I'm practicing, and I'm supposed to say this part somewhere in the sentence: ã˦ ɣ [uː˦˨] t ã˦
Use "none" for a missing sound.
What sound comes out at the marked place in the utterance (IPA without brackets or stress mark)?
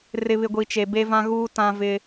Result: uː˦